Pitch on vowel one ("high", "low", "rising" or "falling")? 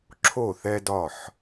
falling